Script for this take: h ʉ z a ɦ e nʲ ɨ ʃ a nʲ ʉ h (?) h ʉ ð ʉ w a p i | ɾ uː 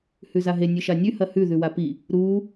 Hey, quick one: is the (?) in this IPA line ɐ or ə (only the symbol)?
ɐ